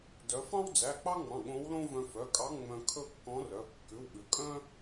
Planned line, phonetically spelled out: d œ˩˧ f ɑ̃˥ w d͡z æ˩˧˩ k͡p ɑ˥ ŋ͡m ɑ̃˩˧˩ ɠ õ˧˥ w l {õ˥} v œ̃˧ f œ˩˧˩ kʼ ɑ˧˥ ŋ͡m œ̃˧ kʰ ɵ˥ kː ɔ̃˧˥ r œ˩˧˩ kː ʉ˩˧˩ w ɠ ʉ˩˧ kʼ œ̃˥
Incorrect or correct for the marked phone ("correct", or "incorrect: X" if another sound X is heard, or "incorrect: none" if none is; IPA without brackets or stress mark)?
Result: correct